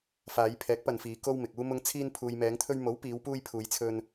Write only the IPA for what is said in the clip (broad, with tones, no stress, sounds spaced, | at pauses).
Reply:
f aː˨˧ j pʰ ɛː˨˥ k̚ p ɐ˨ n f iː˨˧ k o˥ w m ɪ˨ k̚ uː˥ m ʊ˧ ŋ t͡sʰ iː˧ n pʰ uː˨ j m ɛː˨˧ ŋ t̪ʰ ɵ˧ ɥ m o˨˥ w p iː˨˧ w p uː˧ j pʰ uː˨˧ j t͡sʰ ɵ˧ n